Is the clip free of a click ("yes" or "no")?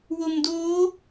yes